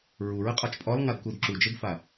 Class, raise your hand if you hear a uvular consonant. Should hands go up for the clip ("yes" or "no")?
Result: yes